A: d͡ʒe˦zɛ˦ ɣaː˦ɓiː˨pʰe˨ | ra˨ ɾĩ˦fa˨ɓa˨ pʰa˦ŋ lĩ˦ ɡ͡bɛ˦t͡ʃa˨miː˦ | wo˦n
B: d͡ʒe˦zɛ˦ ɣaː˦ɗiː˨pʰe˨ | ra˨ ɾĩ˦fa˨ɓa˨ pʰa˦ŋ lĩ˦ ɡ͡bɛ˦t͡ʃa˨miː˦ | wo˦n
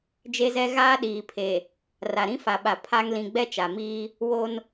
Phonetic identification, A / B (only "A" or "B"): B